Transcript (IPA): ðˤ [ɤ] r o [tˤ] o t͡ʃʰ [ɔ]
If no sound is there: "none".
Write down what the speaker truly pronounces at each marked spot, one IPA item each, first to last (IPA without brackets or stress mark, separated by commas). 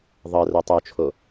ɤ, tˤ, o